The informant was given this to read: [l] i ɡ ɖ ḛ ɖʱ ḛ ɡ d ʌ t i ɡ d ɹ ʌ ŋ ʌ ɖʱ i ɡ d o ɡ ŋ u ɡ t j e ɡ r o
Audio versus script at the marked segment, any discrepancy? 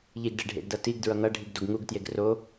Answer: yes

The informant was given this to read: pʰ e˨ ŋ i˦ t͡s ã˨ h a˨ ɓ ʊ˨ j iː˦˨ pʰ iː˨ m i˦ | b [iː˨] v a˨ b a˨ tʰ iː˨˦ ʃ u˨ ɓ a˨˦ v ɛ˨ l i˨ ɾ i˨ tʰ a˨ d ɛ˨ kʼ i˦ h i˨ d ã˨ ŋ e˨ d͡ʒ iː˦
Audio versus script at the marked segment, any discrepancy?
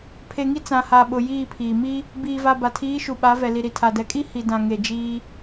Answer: no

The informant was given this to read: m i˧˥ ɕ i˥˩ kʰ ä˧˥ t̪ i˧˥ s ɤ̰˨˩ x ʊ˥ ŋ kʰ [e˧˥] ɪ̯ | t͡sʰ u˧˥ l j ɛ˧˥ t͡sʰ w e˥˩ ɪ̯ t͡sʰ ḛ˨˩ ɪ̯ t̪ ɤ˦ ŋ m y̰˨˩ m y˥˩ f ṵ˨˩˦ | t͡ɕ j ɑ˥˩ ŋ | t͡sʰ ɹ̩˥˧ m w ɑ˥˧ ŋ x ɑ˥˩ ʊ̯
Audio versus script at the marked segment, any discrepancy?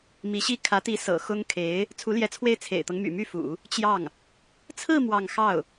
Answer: no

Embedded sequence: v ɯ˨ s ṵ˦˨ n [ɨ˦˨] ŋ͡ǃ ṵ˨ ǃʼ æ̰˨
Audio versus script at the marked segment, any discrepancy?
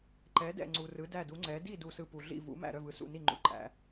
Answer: yes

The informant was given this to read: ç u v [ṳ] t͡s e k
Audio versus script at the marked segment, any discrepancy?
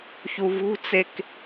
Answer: no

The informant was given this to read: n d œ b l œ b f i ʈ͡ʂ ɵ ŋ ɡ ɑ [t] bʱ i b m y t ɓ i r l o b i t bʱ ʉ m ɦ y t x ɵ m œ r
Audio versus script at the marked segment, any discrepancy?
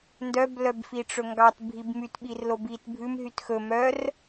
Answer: no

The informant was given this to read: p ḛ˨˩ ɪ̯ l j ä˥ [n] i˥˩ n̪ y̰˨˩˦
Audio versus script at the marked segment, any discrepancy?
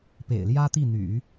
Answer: yes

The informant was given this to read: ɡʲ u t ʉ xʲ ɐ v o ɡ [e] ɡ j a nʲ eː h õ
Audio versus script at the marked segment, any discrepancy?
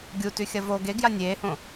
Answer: no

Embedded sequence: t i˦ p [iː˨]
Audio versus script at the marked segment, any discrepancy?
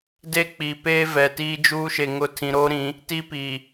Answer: no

